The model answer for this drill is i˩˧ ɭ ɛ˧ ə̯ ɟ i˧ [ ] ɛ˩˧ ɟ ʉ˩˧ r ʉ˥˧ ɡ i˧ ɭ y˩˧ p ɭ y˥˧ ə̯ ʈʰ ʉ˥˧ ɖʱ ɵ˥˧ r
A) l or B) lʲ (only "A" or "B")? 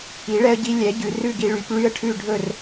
B